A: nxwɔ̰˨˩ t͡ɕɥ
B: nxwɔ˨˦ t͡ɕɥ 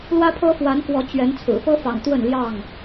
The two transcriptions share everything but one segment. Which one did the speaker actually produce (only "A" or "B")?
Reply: B